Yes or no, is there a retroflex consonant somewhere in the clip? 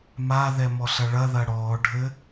yes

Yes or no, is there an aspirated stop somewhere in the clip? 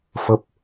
no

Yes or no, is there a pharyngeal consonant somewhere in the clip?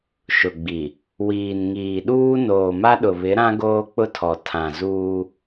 no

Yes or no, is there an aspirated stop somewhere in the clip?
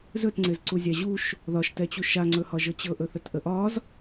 no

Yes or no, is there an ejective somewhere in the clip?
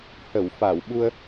no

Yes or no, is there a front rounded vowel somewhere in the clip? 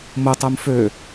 yes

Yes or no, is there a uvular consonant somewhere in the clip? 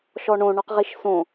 yes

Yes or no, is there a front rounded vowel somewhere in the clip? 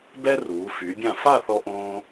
yes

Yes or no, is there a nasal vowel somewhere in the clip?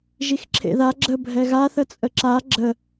no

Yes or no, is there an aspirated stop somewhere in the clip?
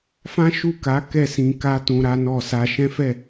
no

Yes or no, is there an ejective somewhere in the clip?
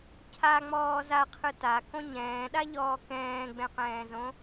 no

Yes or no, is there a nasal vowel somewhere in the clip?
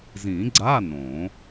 yes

